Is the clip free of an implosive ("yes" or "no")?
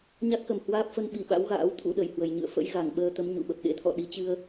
no